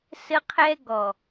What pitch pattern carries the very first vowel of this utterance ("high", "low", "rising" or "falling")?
high